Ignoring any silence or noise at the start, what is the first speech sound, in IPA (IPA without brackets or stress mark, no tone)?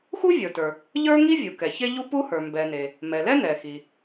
x